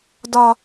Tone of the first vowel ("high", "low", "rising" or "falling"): high